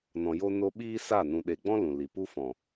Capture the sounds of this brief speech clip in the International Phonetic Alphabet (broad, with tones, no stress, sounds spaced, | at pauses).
n ɔ̃˨ j o˧ n o˧ ɓ iː˦ s a˦˨ n ũ˨ ɗ e˨ ɡ͡b ɔ̃˦ l ũ˨ l i˨ p u˦ f ɔ̃˨